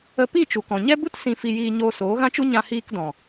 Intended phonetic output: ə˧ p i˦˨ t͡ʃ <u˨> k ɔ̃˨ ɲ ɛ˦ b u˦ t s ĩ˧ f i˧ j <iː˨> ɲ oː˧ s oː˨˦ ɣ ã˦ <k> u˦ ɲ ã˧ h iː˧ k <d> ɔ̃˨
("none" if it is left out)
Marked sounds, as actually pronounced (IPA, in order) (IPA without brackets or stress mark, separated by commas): u˨, iː˧, t͡ʃ, d